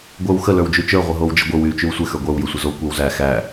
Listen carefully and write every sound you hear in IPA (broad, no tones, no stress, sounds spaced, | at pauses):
ɡʷ ə˞ w x ə l ə˞ w d͡ʒ y t͡ʃ ə˞ ʁʷ ə ɦ o w d͡ʒ ə ɡʷ ɪ w y t͡ʃ y w sʷ ɪ x ə˞ ɡʷ ə˞ w j ə sʷ ə z o kʷ ɛ w z æ x æ